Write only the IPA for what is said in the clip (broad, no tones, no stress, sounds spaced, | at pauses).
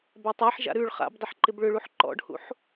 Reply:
b a tˤ a ħ ʒ a̰ ɾ ʉ ɭ χ a̰ b dˤ ɪ ħ ǃ ɪ b ɭ ʏ ɭ u ħ ǃ ɔ̰ ɖ h ṵ ħ